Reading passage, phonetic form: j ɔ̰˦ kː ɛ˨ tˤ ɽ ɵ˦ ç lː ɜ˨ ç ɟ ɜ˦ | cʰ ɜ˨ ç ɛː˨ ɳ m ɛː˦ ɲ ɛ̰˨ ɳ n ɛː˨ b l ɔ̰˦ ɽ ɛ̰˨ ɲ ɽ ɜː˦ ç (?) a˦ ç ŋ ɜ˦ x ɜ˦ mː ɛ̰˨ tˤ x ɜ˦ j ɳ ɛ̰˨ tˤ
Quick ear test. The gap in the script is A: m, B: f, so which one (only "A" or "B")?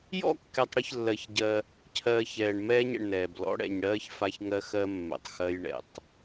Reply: B